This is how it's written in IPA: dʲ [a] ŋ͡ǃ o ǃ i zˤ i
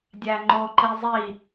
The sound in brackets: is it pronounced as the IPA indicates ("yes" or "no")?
no